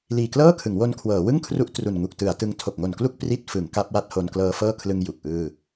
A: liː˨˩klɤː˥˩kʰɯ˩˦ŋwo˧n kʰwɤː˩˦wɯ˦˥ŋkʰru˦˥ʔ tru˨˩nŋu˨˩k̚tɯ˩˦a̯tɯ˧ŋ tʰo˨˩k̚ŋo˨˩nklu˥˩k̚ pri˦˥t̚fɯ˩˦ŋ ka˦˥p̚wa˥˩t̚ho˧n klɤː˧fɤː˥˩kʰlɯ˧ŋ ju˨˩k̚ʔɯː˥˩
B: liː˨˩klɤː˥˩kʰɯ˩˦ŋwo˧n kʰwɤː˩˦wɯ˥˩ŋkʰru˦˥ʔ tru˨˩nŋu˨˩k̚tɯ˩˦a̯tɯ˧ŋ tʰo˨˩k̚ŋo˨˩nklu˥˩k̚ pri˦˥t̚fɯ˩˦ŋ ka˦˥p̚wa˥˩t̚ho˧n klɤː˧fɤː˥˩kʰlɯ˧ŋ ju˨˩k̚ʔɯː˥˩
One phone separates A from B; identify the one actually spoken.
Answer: B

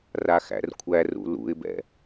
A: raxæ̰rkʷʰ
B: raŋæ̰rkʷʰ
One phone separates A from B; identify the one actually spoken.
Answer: A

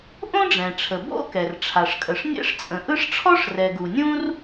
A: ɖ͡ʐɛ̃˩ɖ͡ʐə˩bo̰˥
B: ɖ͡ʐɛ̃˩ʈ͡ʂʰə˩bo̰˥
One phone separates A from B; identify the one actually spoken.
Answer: B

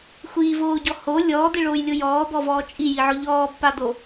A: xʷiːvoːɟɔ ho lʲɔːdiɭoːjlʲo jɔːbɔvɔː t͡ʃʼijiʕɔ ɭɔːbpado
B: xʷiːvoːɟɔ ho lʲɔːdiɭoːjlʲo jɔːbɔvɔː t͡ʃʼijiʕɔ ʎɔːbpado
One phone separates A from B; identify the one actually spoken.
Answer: B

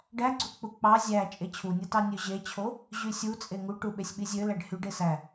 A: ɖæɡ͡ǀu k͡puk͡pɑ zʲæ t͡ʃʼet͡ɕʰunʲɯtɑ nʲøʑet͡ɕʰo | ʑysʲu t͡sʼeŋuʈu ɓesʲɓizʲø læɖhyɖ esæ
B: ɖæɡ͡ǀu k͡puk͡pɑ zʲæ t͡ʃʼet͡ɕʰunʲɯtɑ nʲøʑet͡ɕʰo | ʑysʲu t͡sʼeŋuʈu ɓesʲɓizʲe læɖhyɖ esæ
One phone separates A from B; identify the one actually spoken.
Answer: A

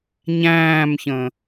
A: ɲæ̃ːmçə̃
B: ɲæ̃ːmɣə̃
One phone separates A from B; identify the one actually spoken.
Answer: A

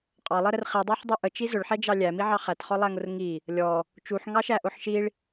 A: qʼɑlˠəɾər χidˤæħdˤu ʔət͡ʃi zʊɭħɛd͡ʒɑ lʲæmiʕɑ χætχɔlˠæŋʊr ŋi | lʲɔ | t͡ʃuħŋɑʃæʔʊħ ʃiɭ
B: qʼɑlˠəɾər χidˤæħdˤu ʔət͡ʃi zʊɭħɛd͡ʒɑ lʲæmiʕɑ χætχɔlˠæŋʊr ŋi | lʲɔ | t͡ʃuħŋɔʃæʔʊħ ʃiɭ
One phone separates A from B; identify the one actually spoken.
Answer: A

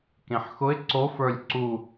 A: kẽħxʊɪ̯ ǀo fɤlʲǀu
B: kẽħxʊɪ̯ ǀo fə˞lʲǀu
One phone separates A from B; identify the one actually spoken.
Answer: B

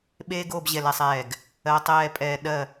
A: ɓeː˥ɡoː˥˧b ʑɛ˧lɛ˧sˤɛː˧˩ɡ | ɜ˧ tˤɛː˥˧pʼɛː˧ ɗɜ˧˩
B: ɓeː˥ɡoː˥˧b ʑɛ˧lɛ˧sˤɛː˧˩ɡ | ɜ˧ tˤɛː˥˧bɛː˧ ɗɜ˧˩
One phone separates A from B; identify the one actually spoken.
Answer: A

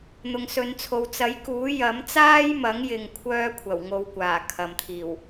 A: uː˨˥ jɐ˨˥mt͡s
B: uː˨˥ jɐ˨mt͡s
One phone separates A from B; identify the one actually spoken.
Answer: A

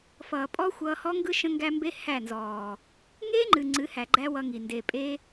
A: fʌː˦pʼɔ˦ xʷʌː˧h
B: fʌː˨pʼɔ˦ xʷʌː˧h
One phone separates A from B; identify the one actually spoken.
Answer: B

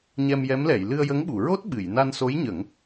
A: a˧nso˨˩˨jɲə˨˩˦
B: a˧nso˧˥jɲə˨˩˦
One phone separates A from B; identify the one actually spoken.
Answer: B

